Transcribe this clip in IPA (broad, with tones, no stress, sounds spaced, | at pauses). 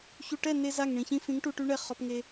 ç u˨ ʈ ɛ˦˨ n e˧ z a˦˨ ŋ ɳ ĩ˨ ç ĩ˧ f ĩ˨˦ ŋ ʈ u˧ ʈ y˦ ɳ ɛ˦˨ χ ɔ˧ p ŋ e˧